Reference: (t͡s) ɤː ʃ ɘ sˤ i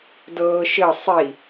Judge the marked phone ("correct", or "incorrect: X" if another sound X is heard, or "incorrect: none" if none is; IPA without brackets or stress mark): incorrect: d